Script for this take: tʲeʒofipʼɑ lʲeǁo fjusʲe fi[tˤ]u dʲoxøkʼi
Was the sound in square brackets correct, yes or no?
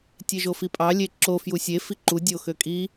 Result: no